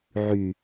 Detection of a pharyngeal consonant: present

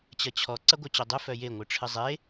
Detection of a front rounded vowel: present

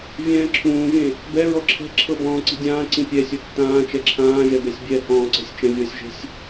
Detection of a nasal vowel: present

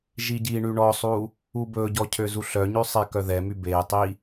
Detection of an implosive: absent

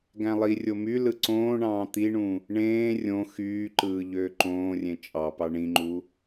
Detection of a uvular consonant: absent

